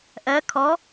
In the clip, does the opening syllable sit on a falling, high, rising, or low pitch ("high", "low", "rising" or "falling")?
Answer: rising